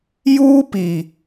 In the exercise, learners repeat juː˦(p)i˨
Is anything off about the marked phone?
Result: no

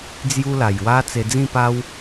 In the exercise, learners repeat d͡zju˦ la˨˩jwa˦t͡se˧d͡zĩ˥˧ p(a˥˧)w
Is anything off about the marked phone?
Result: yes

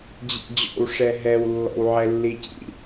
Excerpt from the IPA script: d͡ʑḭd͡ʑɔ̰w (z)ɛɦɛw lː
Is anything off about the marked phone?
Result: yes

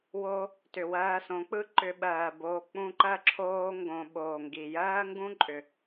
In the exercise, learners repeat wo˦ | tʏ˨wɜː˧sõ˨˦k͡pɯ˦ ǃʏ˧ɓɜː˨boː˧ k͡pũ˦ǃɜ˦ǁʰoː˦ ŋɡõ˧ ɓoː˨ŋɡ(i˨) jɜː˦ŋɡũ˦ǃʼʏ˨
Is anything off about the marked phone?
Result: no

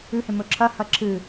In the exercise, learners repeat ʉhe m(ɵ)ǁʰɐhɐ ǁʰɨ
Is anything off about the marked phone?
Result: no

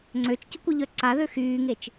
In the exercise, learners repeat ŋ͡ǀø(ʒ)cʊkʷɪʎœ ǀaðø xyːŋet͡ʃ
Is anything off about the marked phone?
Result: yes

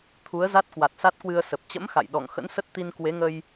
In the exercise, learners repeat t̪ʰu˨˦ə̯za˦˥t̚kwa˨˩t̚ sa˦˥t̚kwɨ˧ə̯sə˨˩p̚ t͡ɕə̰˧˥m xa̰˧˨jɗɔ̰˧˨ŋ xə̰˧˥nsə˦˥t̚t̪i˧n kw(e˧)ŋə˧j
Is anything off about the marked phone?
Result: yes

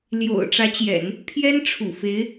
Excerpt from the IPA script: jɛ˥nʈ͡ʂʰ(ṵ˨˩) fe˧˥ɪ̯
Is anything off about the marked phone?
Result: no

